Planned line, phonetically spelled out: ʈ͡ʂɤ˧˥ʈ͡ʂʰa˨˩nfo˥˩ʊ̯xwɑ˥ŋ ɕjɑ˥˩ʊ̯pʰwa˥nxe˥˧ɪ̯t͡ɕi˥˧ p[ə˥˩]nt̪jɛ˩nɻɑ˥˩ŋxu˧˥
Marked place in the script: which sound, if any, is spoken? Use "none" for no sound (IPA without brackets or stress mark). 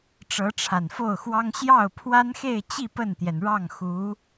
ə˥˩